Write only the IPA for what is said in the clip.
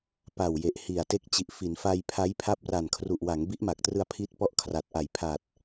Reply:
pa˨˩wje˨˩ʔ hi˨˩a̯te˦˥k̚ t͡ɕi˨˩ʔfi˩˦nfa˧j pʰa˦˥jpʰa˦˥p̚ ra˨˩nkʰru˨˩ʔwa˩˦ŋ bi˦˥ʔma˨˩k̚trɯ˧a̯ pʰi˦˥t̚pɔ˦˥ʔ kʰra˨˩t̚ʔa˨˩jpʰa˨˩t̚

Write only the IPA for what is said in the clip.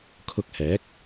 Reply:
kʰʊ˧k̚hɛː˨˥k̚

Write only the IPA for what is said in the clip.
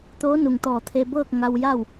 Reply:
t̪oː˧˥nu˩ŋt̪ɔː˧˩t̪ʰe˧ bɤː˥˨k̚ ŋa˧wja˥˨w

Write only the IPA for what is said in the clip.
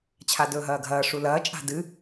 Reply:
t͡ɕʰadɵːɦɐːɡʱɐː ʂulɐː t͡ʃʼa̤dɨ

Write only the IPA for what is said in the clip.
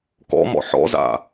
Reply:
kɔ̰mɔ̰ ħɔ̰za̰

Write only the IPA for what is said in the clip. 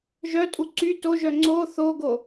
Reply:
ʒœtʼu ǀy toʒœ ŋ͡ǀo θoɡo

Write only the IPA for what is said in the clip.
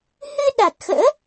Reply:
hɨ˧ɗa˨˩t̚xə̰ː˧˥

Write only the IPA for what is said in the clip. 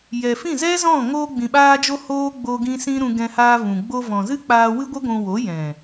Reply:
jɛ˨fĩ˦˨zɛ˦ zɔ̃˦˨ ŋoː˧ɡ͡bĩ˨ɓaː˧d͡ʒo˧ hoː˦ ɡ͡bo˧ ɡĩ˦sĩ˦ ɾũ˧ɡɛ̃˧haː˧vũ˨ ɡ͡bo˧vɔ̃˨zɨ˦k͡paː˧ wɨ˦ɡʷɨ˦ɡʷũ˧ wo˨˦jɛ̃˨

